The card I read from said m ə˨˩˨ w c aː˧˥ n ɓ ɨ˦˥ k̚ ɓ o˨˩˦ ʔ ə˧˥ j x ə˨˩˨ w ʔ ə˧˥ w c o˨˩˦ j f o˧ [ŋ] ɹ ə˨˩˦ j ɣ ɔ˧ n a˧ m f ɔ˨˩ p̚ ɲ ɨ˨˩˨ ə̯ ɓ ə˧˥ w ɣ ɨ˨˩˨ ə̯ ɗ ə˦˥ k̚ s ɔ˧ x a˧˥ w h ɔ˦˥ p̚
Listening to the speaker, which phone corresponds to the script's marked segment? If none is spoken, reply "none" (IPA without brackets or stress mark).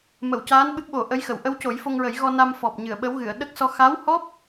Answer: ŋ